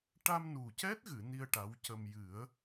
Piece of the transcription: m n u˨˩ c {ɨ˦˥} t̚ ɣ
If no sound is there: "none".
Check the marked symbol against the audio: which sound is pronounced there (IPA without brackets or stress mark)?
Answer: ɛ˦˥